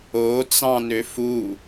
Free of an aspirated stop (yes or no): yes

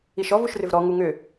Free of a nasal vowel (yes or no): yes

